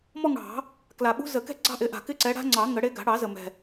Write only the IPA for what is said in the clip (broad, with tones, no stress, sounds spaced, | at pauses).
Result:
m ɔ˥˧ ŋ ɽ ɑ̤˨˩˦ | k l a˨˩ ɓ ṳ˦˥ z ə˨˩˦ k ɛ̤˥˧ ɡ͡ǀ ɑ̤˥˧ ʔ ɪ˨˦ ʔ a̤˨˩ k ɪ˥˧ ǀ ɛ˨˦ ɽ a̤˦˥ ŋ͡ǀ ɑ˨˩˦ ŋ ə˨˩˦ ɽ e˨˦ ɡ a̤˨˩˦ ɽ ɑ˨˩˦ z ə˨˩ m ɛ̤˨˩